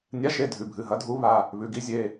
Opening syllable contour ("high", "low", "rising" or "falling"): rising